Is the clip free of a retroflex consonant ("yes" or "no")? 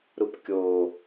yes